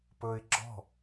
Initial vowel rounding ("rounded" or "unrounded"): rounded